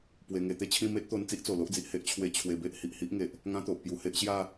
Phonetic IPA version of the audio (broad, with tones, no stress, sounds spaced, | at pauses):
p w e˨˩ ŋ e˧ t̪ e˦ t͡ɕʰ ĩ˥˧ m e˦ t̚ t̪ o˧ n t͡s i˦ ʔ t͡s o˨˩ l o˦ ʔ d͡z i˨ ʔ h e˦ ʔ t͡ɕʰ w e˧ t͡ɕʰ w e˧ b e˦ ʔ h i˨ ʔ h i˦ ʔ ŋ e˨ ʔ | ŋ ã˦ t̪ o˨ ʔ p j u˧ h e˦ ʔ ɕ j a˥˧